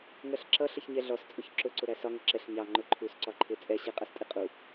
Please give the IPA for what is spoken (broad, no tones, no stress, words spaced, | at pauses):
ŋɜɬǁʌ ɬəçɲɛɮɔs t͡sʼʊçǁʊ ǀʊɾæsɒ ŋəǁɛɬ ɲɑ ŋ͡ǃʊǃʰus ǀɒǃʰɪ t͡sʼɛ ɕiqʼʌstʼiqʼu